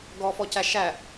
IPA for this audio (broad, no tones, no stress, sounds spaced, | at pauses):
ɡ ɔ f ɔ c æ ʃ æ